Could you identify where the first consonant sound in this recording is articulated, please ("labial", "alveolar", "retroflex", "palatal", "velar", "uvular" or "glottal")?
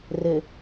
alveolar